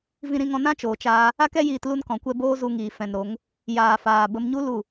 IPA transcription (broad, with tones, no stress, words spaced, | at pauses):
vĩ˧ɾĩ˧ŋɔ̃˧ nã˦t͡ʃoː˨t͡ʃaː˧ | a˦kɛ˦jiː˧t lu˧nkɔ̃˨kʷɛ˧ boː˦zu˧ŋiː˨ fɛ̃˨nɾo˨˦ŋ | jaː˨faː˨ bə˧mɲu˦ lu˦˨